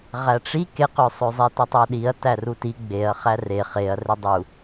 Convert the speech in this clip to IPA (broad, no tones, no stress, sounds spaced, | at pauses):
ʁ æ ʈ͡ʂ i k e q ø sˤ ø zˤ e t ɤ tˤ æ ɗ i ɐ̯ t æ r u t i ɡ͡b e ɐ̯ χ æ r e χ e ɐ̯ r e dˤ u